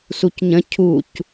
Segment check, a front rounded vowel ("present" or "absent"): absent